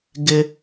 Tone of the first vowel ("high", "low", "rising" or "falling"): low